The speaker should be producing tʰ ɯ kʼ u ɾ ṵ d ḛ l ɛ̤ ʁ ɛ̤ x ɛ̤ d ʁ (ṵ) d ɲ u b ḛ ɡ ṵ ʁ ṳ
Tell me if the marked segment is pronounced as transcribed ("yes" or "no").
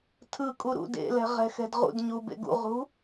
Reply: yes